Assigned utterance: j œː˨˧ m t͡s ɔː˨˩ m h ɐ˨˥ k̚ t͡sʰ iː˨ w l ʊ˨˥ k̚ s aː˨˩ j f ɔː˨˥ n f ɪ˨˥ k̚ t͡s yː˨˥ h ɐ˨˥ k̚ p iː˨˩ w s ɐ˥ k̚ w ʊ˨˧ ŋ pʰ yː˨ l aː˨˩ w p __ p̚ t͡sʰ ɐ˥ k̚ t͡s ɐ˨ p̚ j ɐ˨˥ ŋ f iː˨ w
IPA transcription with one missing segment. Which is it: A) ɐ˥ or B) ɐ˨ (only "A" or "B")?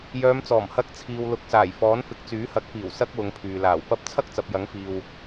A